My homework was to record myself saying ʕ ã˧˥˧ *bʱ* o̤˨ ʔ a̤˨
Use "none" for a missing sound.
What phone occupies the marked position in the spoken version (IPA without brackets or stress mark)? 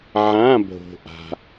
bʱ